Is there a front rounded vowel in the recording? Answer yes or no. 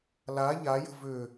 yes